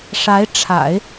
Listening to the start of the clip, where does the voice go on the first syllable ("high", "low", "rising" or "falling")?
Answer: rising